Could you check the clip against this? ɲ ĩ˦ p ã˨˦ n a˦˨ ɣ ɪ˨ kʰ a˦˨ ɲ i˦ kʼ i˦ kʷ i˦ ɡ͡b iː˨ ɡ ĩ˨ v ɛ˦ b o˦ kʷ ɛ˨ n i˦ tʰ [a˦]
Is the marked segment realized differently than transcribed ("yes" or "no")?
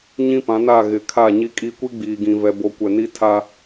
no